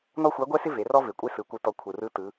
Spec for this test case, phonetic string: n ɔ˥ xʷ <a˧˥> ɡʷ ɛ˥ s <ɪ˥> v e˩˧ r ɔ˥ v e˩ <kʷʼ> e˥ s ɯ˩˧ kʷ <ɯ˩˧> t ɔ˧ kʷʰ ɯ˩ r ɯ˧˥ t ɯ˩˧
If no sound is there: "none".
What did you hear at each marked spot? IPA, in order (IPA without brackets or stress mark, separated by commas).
a˧˥, ɪ˥, kʷʼ, ɯ˧